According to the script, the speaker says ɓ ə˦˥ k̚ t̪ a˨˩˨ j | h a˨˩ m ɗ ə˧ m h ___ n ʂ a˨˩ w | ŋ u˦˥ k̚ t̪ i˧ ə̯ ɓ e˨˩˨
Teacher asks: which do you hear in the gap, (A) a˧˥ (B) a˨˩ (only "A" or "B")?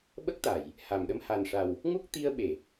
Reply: B